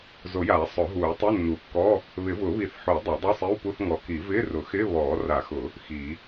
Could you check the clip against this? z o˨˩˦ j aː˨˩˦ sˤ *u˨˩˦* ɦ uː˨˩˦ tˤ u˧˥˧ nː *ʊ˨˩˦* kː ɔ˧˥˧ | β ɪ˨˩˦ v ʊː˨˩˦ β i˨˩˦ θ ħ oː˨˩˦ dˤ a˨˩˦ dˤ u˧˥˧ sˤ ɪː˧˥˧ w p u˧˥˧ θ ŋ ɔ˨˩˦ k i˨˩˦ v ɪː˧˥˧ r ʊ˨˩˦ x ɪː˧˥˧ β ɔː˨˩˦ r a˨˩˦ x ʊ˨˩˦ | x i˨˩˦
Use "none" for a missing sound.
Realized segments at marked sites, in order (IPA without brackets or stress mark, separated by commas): ʊ˨˩˦, u˨˩˦